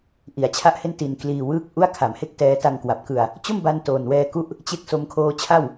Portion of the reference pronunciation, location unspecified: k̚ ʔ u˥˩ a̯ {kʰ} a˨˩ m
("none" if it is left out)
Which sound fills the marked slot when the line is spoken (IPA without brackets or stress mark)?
kʰ